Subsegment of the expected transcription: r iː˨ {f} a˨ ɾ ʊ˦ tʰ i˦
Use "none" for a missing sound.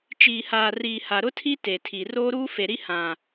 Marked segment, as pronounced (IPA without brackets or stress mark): h